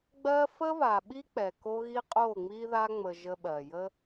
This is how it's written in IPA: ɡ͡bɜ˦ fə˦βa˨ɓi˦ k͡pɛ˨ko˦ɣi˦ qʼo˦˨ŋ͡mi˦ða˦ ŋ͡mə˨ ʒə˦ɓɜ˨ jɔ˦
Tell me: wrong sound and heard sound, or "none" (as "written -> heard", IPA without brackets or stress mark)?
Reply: ɔ˦ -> ə˦